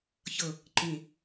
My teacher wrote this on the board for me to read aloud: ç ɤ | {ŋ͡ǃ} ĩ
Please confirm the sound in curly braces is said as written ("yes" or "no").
no